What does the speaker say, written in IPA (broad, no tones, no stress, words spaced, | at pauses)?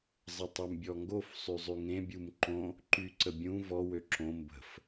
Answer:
zˤətˤømbʲɔŋɡof sˤyzˤyŋẽ bʲumǃõ | ǃyǀəbʲũ vɔ wøǁõ mbə̤f